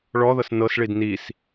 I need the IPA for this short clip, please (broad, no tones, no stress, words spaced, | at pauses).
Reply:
ɭɔðɤs nɤsɭid nis